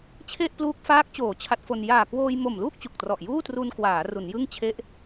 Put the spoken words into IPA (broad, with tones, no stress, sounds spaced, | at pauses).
t͡ɕʰ e˥˩ ʔ p l uː˦˥ k̚ f aː˦˥ k̚ t͡ɕ oː˩˦ t͡ɕʰ a˦˥ t̚ f o˧ n j aː˨˩ k w oː˧ j m o˨˩ m l uː˥˩ k̚ t͡ɕ u˨˩ k̚ t r ɔ˨˩ ʔ j uː˥˩ t r u˧ n k w aː˩˦ r u˩˦ n j ɯ˥˩ ŋ t͡ɕʰ e˦˥ ʔ